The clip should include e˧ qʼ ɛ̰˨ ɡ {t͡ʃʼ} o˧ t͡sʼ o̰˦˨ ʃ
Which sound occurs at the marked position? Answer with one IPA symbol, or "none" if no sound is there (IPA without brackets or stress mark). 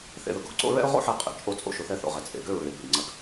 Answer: t͡ʃʼ